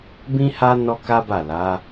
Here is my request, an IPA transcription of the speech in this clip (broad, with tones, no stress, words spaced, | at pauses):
bĩ˦ha˦ nɔ˦ka˦ba˦˨ la˨˦